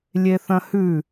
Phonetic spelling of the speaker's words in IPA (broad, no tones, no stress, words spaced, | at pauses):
lʲeθɐ̃hʉ